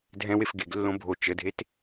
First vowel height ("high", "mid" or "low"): mid